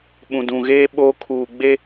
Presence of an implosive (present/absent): present